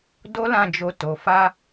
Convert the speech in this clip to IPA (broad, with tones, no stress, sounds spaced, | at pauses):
d o˦ l ã˦˨ d͡ʒ o˧ t o˨ f a˧